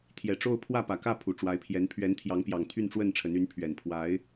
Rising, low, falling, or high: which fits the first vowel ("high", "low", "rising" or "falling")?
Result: low